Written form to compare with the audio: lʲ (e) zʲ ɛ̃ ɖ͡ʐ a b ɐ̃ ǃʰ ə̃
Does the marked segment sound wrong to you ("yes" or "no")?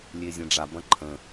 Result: no